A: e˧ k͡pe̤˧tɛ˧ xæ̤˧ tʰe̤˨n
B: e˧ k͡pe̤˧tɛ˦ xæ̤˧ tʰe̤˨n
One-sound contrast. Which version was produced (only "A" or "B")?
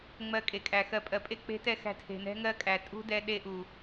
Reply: A